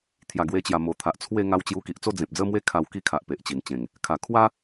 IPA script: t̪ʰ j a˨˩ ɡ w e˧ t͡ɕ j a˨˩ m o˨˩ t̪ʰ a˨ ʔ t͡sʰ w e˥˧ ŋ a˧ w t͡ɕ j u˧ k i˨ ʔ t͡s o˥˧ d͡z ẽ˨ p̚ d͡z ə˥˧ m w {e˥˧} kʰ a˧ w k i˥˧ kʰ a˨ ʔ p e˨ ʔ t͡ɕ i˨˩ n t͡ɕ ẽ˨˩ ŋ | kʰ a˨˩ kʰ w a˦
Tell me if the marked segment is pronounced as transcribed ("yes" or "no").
no